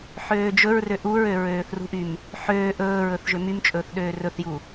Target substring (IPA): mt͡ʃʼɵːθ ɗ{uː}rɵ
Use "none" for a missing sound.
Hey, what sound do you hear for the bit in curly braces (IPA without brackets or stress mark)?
øː